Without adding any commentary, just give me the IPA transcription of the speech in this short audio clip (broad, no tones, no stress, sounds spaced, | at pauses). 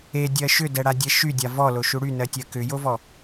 e dʲ ɜ ʃ ʏ d ɛ ɽ a dʲ ɛ ʃ y dʲ a v ɔ l o ʃ u ɽ y n ɜ tʲ ɜ k ʏ j o v ɔ